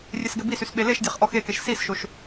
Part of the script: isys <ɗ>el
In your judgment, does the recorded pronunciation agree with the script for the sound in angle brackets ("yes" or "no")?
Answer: no